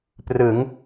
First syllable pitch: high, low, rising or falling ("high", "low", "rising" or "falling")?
rising